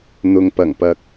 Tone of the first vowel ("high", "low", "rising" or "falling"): low